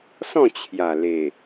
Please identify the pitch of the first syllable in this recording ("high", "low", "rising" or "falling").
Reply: falling